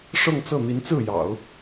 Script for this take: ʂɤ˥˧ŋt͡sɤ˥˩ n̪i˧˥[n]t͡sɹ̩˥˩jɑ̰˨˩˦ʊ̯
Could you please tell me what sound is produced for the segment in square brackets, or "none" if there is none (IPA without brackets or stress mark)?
n